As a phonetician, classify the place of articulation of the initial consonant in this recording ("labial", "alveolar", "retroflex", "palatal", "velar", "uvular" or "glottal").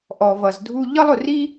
glottal